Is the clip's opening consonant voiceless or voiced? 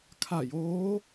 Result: voiceless